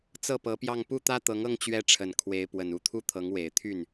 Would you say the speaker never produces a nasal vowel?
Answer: yes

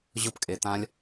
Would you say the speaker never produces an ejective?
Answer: no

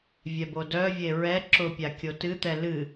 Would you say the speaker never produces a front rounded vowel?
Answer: no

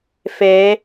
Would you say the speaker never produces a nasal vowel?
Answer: yes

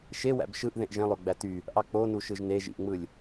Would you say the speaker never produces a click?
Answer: yes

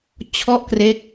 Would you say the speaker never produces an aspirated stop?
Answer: no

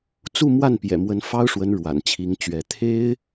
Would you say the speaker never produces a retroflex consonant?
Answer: no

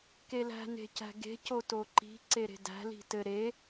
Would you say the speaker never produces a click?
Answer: no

